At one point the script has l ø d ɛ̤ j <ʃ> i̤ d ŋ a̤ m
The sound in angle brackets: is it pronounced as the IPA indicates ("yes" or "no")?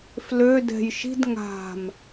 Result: yes